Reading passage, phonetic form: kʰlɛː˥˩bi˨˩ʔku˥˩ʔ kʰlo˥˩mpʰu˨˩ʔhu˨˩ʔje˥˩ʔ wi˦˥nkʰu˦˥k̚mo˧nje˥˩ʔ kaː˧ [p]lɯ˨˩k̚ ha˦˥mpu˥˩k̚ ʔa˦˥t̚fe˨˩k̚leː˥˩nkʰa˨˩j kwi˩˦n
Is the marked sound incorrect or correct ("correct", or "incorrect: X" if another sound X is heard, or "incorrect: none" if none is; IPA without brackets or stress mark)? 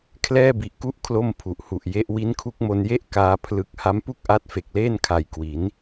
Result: incorrect: pʰ